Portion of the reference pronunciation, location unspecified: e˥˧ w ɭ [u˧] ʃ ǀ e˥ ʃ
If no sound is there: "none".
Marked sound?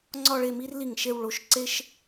o˧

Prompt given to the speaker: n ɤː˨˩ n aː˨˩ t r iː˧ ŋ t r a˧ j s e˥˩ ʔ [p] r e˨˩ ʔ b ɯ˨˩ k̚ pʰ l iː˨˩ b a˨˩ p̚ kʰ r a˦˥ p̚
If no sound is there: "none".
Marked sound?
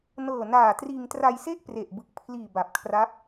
p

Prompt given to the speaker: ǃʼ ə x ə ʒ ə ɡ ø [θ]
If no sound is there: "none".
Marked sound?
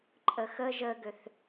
θ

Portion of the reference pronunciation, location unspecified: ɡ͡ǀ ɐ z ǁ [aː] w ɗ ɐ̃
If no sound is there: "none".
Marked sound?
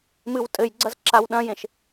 a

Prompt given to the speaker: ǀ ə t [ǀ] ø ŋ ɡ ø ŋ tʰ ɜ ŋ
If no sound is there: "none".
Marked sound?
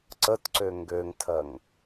ǀ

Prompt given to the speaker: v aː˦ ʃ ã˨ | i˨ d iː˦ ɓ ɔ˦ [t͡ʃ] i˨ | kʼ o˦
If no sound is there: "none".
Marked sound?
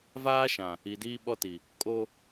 t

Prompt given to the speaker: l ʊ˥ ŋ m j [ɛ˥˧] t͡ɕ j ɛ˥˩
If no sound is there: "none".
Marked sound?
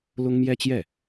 ɛ˥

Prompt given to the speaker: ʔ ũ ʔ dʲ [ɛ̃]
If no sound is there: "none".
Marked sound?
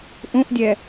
ɛ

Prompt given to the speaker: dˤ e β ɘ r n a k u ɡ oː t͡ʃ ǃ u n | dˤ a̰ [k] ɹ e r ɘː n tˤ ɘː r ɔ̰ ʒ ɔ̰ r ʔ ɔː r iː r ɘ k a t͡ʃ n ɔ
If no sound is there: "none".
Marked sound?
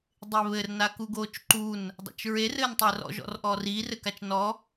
t͡ʃ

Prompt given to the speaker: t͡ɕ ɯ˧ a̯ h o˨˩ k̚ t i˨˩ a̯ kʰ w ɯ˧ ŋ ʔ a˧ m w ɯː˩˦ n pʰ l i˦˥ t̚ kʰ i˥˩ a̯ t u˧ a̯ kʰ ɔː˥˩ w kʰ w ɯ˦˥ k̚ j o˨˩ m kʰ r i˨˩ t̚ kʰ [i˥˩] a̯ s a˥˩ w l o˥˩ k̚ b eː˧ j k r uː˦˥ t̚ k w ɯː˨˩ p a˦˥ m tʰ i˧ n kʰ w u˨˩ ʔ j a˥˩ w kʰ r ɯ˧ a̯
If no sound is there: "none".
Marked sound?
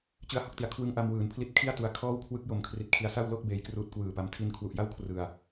i˧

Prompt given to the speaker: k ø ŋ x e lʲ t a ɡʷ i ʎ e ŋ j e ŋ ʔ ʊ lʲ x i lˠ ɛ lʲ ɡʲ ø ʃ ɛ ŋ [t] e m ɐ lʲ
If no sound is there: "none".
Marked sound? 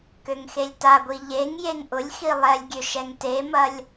t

